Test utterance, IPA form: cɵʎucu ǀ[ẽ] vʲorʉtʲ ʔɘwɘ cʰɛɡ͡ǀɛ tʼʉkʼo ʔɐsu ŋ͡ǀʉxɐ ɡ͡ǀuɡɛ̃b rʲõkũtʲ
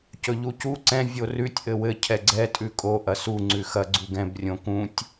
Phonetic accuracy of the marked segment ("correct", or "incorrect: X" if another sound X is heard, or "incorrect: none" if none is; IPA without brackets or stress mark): incorrect: ɛ̃